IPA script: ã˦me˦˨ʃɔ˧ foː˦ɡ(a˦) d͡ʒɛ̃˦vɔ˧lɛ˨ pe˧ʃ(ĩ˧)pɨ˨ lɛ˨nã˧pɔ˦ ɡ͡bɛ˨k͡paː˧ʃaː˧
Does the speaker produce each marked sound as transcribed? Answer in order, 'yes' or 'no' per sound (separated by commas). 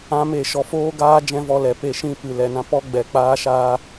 no, yes